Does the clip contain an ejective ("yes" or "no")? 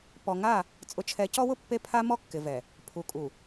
yes